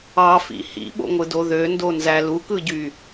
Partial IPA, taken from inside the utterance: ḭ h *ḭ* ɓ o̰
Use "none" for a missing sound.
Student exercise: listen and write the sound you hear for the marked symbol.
ḭ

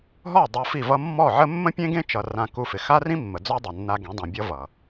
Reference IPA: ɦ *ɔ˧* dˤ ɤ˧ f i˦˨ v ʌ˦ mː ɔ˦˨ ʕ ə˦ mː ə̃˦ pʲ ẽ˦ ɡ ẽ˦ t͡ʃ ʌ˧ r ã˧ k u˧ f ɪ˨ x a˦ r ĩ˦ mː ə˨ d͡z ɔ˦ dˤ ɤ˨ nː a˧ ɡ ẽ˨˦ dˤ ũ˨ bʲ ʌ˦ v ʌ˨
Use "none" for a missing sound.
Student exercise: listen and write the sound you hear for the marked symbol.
ɔ˦˨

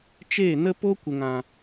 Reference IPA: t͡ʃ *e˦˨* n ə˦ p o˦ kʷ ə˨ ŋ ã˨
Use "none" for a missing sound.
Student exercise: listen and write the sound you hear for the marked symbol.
eː˦˨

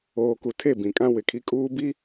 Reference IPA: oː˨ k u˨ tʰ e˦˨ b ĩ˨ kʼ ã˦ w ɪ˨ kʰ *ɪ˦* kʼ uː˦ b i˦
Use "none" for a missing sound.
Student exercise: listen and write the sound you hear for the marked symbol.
i˦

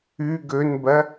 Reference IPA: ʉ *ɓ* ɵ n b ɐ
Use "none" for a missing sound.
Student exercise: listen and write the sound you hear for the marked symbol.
ɡ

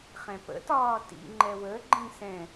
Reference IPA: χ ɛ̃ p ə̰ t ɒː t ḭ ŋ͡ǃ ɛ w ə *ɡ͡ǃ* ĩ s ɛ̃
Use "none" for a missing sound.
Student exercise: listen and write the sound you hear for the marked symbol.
ɡ͡ǃ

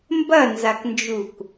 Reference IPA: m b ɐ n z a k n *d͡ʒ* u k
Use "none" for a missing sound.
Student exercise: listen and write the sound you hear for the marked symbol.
d͡ʒ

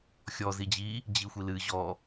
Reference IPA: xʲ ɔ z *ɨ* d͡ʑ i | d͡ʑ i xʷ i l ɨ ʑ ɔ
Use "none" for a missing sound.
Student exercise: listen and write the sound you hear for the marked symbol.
i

